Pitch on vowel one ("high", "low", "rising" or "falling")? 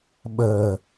low